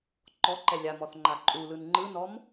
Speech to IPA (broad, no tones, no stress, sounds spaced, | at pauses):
ǃ ɔ ǃ ɛ lʲ a m ɔ θ ŋ͡ǃ a ǃʼ u l ɯ n ŋ͡ǃ ɯ n ɔ m